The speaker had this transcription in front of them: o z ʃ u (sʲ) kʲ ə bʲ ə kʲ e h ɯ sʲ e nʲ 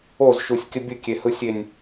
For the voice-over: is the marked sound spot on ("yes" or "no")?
yes